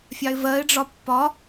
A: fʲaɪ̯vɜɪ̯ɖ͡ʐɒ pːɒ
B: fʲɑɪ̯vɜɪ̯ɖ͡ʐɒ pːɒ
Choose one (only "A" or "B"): B